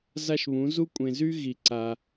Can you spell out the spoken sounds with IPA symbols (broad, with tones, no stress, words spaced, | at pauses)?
za˥ʃβũ˨˥ zu˥kʷʼẽ˧zy˥ ɣi˧ ǀa˧